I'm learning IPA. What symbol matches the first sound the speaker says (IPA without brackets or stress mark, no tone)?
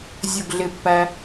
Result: zʲ